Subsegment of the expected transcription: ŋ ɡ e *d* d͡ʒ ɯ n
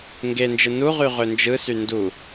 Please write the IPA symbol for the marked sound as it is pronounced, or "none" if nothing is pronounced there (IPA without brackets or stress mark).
n